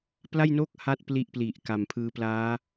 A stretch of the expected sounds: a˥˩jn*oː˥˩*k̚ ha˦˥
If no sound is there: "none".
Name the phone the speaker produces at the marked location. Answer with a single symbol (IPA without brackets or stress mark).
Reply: oː˥˩